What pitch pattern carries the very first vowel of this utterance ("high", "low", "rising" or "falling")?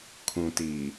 low